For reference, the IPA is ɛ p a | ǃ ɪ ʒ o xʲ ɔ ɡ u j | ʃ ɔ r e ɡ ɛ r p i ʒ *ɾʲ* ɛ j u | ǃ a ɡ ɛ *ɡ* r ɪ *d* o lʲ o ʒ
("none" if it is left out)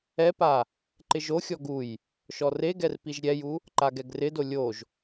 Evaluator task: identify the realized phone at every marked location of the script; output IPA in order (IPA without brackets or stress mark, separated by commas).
ɾʲ, ɡ, d